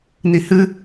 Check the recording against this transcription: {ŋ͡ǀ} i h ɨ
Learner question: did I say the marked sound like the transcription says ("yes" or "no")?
no